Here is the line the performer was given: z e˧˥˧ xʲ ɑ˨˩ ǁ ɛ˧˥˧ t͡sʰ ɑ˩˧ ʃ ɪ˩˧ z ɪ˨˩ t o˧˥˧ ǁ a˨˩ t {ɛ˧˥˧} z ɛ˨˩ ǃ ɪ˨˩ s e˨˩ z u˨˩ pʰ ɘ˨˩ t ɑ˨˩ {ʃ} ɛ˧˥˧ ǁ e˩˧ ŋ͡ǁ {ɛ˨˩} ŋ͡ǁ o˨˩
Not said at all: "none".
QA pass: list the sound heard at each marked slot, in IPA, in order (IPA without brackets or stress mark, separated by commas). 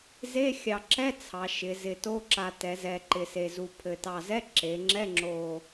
ɛ˩˧, z, ɛ˧˥˧